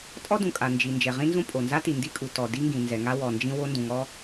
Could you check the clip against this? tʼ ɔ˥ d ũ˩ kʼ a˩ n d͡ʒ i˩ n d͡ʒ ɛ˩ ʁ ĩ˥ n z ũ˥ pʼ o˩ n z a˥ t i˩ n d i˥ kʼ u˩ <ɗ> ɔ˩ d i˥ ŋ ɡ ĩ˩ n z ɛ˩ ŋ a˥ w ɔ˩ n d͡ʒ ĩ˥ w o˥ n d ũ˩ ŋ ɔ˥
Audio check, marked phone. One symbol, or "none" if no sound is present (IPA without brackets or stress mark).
t